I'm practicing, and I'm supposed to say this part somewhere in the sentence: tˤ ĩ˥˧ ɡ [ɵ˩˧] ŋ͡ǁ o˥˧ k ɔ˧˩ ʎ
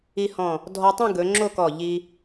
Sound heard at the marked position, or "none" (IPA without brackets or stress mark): ɵ˩˧